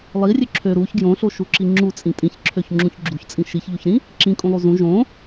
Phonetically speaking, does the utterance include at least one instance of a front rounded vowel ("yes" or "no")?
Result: yes